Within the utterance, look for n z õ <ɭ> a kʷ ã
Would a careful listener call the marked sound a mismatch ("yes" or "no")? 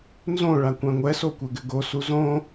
no